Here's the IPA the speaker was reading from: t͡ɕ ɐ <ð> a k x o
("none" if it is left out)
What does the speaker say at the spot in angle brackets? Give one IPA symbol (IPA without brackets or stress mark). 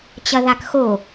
ð